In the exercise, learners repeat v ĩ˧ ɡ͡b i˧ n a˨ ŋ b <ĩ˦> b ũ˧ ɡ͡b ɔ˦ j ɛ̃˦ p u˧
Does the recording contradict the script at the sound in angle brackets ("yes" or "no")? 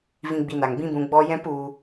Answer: no